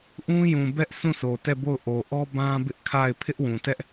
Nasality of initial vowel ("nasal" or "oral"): nasal